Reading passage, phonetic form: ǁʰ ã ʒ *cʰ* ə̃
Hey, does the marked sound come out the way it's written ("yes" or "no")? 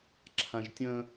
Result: no